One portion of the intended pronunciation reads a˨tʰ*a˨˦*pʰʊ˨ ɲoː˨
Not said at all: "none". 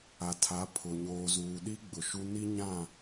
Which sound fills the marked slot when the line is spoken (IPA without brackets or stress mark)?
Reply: a˨˦